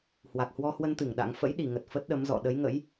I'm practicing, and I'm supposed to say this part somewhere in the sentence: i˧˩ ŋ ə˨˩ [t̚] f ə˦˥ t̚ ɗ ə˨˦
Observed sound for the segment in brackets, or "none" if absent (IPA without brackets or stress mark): t̚